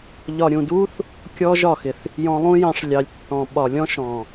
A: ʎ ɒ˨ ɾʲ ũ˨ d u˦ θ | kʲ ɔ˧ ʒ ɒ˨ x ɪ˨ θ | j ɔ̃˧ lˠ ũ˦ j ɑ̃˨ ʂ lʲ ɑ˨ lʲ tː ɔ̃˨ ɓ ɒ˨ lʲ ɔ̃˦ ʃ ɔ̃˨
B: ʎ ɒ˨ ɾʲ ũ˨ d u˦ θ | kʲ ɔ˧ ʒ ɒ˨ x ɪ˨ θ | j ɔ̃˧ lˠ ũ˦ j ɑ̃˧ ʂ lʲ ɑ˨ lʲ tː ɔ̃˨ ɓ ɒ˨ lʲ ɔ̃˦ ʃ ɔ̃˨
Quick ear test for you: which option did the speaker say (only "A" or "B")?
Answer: B